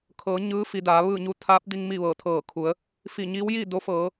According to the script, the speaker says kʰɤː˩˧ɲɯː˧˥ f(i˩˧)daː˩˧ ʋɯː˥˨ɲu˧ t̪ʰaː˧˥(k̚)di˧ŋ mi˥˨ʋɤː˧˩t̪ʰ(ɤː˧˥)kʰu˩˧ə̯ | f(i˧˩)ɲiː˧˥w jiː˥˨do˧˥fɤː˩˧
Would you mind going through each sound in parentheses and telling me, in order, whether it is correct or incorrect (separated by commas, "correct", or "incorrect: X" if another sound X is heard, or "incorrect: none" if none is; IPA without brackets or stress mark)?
correct, incorrect: p̚, incorrect: ɤː˧˩, correct